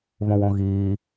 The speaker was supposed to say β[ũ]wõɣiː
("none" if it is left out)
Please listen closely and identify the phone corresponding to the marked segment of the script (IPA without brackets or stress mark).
õ